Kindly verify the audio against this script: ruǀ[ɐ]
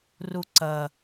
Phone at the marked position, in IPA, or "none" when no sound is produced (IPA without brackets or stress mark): ɐ